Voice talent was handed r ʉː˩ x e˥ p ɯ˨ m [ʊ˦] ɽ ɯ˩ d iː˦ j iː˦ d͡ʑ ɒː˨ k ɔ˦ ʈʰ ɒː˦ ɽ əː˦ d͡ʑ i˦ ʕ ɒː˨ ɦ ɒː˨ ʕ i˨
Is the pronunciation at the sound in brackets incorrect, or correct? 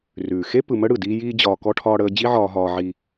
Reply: incorrect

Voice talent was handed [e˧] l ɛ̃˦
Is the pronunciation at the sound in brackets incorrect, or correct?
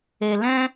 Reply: correct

